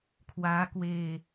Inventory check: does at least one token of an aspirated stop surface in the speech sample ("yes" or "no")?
yes